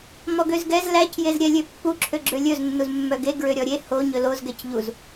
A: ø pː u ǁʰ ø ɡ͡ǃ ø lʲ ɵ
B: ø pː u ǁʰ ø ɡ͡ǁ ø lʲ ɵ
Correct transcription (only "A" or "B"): B